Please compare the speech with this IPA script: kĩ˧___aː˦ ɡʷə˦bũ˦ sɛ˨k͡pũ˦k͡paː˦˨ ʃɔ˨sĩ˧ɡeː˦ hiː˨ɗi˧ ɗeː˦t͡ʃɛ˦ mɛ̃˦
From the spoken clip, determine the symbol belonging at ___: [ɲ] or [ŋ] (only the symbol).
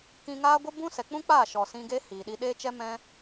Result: ŋ